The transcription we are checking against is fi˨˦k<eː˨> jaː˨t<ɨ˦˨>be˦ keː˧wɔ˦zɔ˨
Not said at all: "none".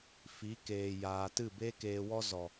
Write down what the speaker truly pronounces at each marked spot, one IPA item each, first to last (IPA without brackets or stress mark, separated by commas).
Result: eː˨, ɨ˦˨